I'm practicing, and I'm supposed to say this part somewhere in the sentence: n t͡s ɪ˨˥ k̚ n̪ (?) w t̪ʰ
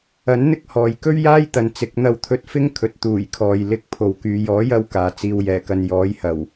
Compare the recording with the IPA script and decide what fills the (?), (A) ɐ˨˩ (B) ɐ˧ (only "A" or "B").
B